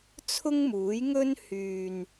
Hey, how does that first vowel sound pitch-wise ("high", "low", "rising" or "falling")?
high